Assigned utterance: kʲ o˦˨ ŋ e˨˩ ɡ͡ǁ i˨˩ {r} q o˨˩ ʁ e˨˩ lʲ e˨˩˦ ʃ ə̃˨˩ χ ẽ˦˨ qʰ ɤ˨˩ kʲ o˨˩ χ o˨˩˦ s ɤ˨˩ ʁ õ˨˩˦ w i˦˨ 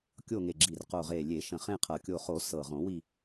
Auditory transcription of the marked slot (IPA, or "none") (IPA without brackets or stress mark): r